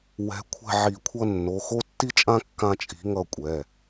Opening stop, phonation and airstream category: aspirated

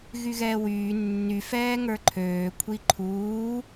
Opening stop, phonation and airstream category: click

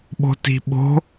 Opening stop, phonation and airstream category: implosive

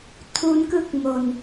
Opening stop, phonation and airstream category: aspirated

